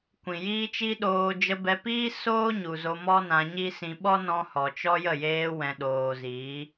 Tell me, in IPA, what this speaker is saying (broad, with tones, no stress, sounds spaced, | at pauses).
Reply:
kʷ ĩ˨ j iː˦ t͡ʃ i˦ ɗ oː˧ d͡ʒ ə˧ b ɛ˧ p iː˦ s oː˦ ɲ u˨ z o˧ m ɔ˦ n ã˧ ɲ i˦ s ĩ˧ ɓ ɔ˦ n ɔ̃˧ h ɔ˨ t͡ʃ ɔ˦ j ə˦˨ j eː˧ w ɛ̃˨ ɗ oː˨ z iː˨˦